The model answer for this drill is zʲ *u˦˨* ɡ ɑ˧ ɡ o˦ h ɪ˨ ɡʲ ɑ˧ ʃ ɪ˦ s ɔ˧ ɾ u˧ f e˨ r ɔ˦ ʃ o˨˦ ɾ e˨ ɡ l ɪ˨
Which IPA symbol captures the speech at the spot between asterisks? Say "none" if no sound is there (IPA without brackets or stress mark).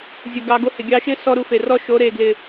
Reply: u˨